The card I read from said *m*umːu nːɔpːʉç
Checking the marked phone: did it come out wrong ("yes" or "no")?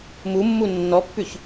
no